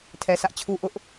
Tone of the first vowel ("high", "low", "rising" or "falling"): low